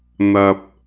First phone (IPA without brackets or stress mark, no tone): n̪